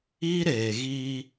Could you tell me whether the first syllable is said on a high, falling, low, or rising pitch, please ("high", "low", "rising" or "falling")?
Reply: high